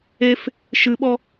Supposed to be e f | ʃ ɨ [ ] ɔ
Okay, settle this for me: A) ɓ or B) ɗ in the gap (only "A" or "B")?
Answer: A